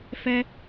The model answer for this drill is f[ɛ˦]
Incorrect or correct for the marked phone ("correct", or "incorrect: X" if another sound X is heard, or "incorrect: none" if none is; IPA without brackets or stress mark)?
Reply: correct